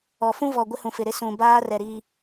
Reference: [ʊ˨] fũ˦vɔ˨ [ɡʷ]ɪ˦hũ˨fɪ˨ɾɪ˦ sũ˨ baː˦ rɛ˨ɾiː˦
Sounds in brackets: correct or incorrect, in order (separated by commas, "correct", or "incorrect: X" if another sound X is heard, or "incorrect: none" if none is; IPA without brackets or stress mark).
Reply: incorrect: ɔ˨, correct